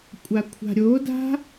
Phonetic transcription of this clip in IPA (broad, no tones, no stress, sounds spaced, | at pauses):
kʷʼ a kʷʰ a̤ ɾʲ o d a̤